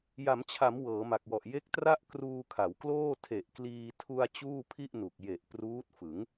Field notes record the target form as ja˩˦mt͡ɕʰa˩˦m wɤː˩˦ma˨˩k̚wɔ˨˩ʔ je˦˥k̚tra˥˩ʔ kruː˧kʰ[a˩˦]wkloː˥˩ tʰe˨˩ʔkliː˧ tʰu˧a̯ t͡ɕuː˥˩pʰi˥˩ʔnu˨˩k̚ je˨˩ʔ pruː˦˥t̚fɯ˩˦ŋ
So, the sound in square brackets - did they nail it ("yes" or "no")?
yes